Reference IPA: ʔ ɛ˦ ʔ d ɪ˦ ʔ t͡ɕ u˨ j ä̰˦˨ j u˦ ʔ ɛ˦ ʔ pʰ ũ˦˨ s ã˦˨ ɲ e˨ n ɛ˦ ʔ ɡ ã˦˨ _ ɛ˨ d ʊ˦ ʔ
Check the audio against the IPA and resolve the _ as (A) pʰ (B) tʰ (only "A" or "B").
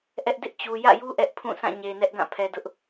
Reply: A